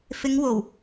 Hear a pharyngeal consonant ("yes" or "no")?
no